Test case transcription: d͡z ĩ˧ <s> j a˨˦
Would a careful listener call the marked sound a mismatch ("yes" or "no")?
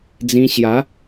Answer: yes